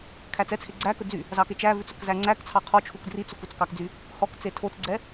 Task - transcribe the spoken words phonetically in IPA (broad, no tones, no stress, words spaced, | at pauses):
kʰæt͡sɛt͡sʰe ɡ͡ǀækɵ d͡zy | zɑket͡ʃævʉt͡s ɵkzæŋ͡ǀækt͡sʰɑ qʰɔt͡ʃʰuk drit͡suk ut͡skɑkd͡zy | hɔkt͡se tʰot͡sɡ͡ǀɛ